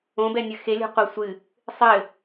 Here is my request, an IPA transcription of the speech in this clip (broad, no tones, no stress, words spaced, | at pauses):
õbɛnʲɘ xelʲɔ̤qo sʷɨ | sˤɘ